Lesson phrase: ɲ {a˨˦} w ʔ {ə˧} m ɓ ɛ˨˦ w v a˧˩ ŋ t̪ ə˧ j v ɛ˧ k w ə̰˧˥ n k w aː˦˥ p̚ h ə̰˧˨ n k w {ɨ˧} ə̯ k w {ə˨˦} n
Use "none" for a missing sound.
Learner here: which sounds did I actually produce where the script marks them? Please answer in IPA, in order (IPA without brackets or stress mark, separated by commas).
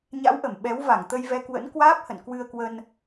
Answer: a̰˧˥, ə˧˩, ɨ˧, ə˧